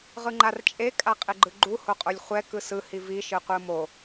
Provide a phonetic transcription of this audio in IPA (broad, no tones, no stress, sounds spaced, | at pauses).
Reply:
ʁ ɯ ŋ͡ǃ a r t͡ʃʼ e kʼ a qʼ e ɡ͡ǃ ɯ ɡ͡ǃ u h o qʼ o lʲ χʷ ɛ k ɯ s ɯ h i v i ʃ ɯ qʷ ɯ m o